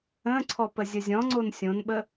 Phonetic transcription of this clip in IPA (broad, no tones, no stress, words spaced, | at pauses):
ə̃ ǀʰɔpəzʲəzʲɔ̃ ŋ͡ǀonsʲõnɓə